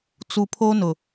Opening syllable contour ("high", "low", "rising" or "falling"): low